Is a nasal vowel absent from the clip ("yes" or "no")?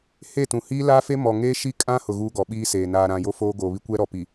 no